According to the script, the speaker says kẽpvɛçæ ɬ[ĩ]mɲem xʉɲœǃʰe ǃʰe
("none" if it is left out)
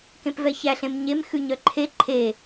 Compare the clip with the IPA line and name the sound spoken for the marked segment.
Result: ẽ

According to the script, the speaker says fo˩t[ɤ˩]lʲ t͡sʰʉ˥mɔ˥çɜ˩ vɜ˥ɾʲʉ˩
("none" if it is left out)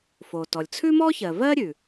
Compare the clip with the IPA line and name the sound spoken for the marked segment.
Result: ɔ˩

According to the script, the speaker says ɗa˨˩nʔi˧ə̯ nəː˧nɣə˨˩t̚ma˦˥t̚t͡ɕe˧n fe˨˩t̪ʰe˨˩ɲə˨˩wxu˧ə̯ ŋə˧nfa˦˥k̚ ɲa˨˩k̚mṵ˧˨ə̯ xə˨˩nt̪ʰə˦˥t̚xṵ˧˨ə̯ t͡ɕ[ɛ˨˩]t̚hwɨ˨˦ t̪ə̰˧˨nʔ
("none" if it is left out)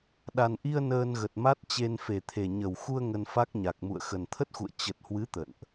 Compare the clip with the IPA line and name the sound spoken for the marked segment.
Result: ə˨˩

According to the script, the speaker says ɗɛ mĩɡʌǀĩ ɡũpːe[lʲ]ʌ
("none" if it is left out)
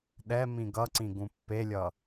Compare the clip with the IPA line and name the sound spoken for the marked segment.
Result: lʲ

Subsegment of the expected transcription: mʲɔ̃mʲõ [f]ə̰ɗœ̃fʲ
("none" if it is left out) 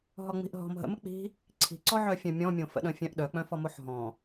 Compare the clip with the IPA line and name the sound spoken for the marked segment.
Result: f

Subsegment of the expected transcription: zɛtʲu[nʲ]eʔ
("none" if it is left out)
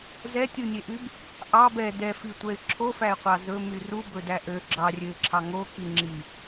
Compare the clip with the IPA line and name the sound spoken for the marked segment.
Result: nʲ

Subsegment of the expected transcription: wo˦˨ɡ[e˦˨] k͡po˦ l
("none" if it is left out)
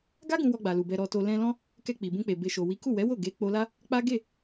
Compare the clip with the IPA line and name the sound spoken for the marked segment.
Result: e˨˦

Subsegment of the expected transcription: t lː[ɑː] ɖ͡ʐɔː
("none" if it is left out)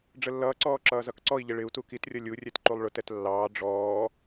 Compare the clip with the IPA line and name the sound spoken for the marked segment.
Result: ɑː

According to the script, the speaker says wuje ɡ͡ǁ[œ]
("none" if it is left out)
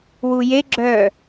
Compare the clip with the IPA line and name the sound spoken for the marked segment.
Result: œ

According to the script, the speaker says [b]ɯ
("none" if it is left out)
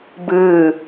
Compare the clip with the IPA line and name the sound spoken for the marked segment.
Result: b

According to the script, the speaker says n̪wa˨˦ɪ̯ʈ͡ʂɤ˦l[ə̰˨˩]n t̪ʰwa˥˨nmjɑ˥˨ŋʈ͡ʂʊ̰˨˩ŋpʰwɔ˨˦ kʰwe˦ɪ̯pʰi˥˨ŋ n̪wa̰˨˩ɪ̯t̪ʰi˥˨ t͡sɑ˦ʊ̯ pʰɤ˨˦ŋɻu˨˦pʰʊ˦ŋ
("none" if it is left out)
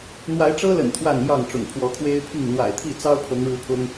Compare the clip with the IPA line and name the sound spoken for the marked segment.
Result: ə̰˨˩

